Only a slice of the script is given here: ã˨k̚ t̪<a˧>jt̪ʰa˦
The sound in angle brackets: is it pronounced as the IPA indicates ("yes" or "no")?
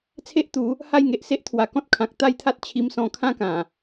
no